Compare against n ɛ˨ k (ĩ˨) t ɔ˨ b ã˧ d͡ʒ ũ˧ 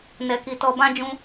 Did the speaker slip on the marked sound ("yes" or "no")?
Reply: yes